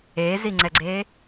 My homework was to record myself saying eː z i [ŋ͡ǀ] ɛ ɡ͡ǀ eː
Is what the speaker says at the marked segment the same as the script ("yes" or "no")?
yes